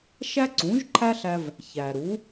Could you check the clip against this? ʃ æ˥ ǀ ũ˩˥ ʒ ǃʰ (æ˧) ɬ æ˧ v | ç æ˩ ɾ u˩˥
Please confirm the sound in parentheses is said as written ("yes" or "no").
no